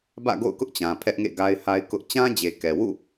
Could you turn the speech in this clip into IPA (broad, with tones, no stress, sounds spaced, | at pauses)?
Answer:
b ä̰˦˨ ɡ o̰˦˨ ʊ̯ k ʊ˦ ʔ t͡ɕ ã˨ pʰ ɛ˦ ʔ ŋ ḛ˦˨ ɡ a˦ ɪ̯ h a˦ ɪ̯ k ʊ˦ ʔ t͡ɕ ã˦ d͡ʑ e˨ k ɛ˨ w ṵ˦˨